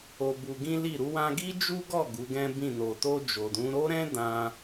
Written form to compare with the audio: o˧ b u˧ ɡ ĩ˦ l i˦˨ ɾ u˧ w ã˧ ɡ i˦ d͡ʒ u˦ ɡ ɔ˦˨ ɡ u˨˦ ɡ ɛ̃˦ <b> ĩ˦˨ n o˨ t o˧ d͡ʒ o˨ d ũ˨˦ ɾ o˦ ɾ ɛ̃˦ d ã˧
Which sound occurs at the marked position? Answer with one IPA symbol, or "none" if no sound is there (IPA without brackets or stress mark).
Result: b